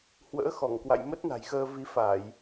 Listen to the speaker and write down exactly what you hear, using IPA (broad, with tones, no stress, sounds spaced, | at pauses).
h w ə̰ː˧˥ x ɔ˧˩ ŋ k w a̰˧˨ j m ə˦˥ t̚ n a̤˨˩ j x əː˧ v i˨˦ f a˧˩˨ j